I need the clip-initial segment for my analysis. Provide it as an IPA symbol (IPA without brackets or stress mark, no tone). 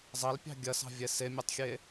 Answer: zˤ